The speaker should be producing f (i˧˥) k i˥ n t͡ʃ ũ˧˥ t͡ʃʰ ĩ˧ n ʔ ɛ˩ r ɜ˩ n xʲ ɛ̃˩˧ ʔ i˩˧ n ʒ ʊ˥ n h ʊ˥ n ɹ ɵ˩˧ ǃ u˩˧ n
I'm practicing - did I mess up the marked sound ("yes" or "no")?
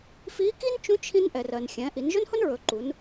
no